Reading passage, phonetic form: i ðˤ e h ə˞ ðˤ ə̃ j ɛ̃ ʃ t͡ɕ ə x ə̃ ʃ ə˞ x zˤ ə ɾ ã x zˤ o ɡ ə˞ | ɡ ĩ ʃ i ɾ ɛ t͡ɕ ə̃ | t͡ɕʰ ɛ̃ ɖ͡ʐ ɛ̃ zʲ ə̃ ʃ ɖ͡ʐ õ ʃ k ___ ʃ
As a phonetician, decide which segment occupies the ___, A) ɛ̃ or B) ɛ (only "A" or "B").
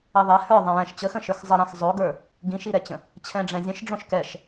B